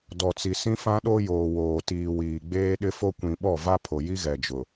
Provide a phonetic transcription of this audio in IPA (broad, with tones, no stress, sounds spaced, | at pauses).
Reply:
d ɔ˨ t͡s i˨ s ĩ˦ f ã˦ ɗ o˦ j oː˨ w oː˨ t iː˨ w iː˨ ɡ͡b eː˦ ɗ ɪ˦ f o˦ kʷ ĩ˨ ɓ ɔ˦˨ v a˦ pʰ o˨ j i˦ ɣ ɛ˨ d͡ʒ ʊ˨